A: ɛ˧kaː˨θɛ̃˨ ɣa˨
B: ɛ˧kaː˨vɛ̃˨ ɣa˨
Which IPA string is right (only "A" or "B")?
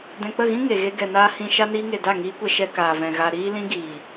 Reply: B